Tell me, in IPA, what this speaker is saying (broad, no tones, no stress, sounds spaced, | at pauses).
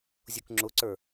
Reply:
zʲ u k ŋ͡ǁ ʊ ǀ ə˞